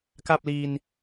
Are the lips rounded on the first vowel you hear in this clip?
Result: no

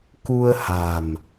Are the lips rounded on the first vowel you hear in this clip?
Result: yes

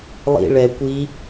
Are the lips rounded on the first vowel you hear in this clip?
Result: no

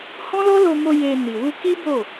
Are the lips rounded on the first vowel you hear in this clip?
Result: yes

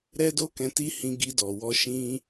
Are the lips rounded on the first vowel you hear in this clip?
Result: no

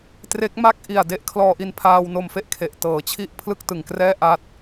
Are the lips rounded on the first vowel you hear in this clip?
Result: no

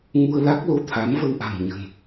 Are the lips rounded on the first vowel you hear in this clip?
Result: yes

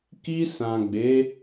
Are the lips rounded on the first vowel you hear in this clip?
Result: no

